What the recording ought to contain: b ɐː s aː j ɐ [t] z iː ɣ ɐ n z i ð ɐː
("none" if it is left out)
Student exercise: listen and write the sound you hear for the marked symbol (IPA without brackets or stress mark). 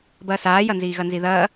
n